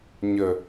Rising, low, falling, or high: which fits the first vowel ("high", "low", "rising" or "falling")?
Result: low